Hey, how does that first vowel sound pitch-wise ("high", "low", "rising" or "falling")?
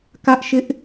high